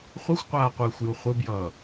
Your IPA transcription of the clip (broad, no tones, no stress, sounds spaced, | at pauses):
χʷ ɯ xʷ qʷ aː qʷ ɯː xʷ j u χʷ ɯ b j ʌː